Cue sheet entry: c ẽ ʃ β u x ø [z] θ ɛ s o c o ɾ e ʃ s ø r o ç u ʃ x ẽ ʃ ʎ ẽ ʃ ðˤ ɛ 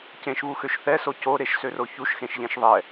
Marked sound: incorrect: ʃ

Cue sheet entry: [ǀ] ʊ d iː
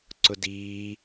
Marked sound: correct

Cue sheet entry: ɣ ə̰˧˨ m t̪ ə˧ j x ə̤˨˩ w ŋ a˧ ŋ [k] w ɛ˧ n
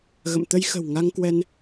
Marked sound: correct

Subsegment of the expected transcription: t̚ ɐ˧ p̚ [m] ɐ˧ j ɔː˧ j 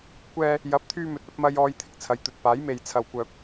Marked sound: correct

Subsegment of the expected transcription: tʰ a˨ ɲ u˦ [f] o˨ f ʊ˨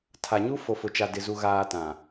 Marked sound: correct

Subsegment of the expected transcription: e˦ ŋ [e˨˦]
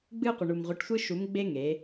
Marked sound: correct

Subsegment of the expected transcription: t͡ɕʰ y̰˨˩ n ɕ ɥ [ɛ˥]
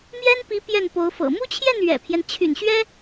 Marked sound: correct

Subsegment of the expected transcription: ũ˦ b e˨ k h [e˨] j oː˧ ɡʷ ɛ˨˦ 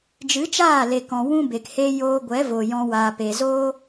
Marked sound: incorrect: e˦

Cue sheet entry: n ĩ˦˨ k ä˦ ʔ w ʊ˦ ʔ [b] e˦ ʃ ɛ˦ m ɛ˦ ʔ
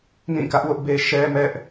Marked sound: correct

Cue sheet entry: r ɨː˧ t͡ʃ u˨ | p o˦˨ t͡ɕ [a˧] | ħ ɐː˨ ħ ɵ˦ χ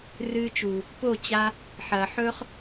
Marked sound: correct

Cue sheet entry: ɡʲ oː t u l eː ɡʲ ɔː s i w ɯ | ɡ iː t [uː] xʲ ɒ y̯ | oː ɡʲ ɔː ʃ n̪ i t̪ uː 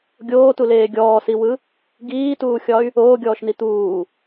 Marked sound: correct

